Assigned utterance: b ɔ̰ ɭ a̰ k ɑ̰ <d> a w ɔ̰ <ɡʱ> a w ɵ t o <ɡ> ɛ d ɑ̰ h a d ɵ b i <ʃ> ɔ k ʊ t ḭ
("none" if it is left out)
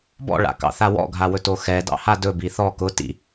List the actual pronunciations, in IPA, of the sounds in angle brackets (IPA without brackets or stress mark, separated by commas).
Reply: θ, ɡʱ, x, θ